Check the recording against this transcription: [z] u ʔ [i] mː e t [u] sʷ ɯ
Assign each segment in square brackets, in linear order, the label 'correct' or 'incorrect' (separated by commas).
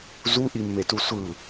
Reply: correct, correct, correct